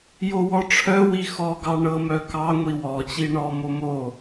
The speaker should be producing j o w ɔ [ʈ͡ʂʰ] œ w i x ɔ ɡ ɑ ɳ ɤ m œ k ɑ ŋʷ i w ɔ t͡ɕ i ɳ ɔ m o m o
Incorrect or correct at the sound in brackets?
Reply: correct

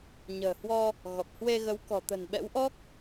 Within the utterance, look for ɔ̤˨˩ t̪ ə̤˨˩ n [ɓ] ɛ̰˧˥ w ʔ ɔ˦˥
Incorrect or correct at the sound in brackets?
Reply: correct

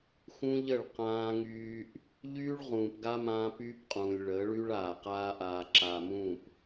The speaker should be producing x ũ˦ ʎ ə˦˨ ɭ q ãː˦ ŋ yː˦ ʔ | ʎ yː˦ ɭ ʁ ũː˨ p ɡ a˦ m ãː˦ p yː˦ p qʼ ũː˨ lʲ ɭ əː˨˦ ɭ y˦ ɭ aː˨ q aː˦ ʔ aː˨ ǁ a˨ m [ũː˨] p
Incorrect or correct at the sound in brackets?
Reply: incorrect: ũː˦˨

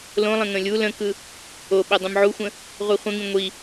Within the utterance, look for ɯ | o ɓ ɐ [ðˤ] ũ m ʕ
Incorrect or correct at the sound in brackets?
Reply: incorrect: dˤ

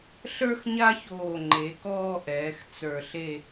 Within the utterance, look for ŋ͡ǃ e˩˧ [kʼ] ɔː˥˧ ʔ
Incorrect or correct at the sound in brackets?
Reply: incorrect: k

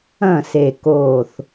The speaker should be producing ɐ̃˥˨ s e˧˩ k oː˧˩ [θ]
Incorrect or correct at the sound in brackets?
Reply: correct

